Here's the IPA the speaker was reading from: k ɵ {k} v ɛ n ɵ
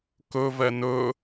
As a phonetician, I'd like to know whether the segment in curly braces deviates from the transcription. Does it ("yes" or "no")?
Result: yes